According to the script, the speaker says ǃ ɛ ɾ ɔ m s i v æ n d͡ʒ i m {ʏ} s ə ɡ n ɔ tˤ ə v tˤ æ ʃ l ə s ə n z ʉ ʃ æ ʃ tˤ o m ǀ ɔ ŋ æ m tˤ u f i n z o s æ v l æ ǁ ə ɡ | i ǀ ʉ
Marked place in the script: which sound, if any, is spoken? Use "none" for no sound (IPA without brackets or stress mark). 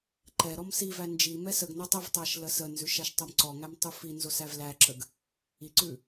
ɛ